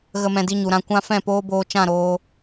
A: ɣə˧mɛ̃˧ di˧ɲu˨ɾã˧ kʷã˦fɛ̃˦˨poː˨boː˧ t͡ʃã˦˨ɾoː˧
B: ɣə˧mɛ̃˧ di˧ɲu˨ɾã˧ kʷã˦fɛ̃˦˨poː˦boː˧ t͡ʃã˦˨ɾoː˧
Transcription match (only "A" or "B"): B